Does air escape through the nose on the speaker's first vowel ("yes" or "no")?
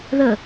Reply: no